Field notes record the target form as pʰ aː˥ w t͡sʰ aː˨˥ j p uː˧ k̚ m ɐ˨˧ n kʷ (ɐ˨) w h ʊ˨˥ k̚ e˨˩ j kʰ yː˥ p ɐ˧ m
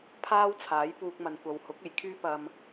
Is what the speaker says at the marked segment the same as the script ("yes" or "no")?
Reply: yes